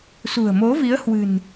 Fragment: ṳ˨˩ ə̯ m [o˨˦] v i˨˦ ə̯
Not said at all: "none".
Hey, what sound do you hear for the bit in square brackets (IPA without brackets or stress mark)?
o˨˦